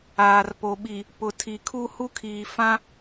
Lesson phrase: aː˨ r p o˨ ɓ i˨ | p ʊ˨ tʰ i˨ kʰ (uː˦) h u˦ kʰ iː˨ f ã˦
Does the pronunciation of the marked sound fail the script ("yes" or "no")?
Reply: yes